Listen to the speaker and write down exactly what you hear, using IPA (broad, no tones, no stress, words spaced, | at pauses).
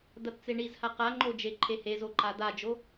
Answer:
d̪ɐtt͡seɳizha qaŋ͡ǃo d͡ʒeǃʰehezo ǃad̪ad͡ʒo